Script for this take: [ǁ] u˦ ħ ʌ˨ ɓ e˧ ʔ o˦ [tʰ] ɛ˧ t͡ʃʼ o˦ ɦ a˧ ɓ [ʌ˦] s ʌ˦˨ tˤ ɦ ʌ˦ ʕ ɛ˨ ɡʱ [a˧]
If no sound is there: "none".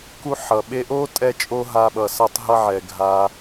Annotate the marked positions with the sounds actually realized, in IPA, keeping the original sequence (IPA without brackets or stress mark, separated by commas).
k, tʼ, ʌ˨, a˧